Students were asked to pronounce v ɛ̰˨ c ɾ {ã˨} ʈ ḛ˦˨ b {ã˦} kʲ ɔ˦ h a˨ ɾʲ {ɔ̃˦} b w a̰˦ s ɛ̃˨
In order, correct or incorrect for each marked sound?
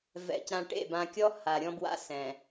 correct, incorrect: ã˨, correct

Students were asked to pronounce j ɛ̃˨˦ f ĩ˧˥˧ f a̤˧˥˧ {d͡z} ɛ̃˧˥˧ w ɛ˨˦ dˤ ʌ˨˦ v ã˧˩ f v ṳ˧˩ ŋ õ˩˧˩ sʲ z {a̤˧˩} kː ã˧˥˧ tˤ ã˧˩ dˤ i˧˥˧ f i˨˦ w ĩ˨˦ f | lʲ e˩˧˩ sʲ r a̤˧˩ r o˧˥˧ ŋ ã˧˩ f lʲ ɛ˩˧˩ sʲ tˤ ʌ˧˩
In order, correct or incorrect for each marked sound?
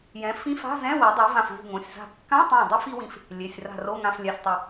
incorrect: z, correct

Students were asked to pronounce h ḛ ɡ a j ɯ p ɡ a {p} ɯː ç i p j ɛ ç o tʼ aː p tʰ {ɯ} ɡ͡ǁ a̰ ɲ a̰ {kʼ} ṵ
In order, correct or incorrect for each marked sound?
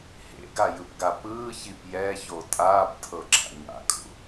correct, incorrect: ɤ, correct

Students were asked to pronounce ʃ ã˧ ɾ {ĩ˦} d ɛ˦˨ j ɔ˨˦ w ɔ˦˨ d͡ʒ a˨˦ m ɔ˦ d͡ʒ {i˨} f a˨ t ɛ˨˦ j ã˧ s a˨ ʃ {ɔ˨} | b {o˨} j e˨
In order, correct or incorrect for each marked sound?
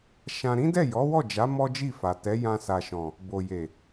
correct, incorrect: i˦˨, incorrect: ɔ̃˨, correct

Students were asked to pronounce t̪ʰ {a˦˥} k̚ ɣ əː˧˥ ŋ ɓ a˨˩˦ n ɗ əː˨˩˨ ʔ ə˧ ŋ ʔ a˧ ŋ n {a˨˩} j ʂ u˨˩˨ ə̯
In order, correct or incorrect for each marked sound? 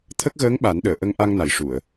incorrect: ə˦˥, incorrect: a˨˩˦

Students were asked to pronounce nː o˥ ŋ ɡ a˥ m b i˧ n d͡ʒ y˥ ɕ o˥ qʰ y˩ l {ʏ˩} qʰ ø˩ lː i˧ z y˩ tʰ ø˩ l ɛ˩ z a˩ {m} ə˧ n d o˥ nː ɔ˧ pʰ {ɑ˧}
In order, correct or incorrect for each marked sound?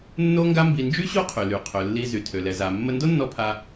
incorrect: y˩, incorrect: mː, incorrect: a˧

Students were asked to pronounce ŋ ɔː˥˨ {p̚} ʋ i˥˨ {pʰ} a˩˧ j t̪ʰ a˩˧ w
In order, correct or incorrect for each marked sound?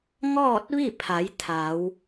incorrect: t̚, correct

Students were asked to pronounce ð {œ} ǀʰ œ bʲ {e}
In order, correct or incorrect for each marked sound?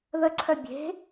incorrect: ə, incorrect: e̤

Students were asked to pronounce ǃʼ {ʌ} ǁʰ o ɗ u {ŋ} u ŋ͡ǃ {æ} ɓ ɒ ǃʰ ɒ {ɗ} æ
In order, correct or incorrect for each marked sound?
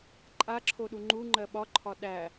incorrect: a, incorrect: ŋ͡ǃ, incorrect: ɜ, correct

